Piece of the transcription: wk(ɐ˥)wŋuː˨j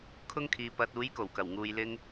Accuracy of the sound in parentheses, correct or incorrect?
incorrect